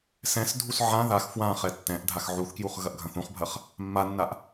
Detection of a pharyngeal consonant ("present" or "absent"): present